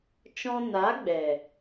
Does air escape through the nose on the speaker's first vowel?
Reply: yes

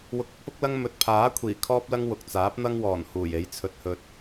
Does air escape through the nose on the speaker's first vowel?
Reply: no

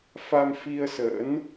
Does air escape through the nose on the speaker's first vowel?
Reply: no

